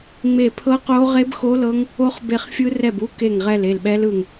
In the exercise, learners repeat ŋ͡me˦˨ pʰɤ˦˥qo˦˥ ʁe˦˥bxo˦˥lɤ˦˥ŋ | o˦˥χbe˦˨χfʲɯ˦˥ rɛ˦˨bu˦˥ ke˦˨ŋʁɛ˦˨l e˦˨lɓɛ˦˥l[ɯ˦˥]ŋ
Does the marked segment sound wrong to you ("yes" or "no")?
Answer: yes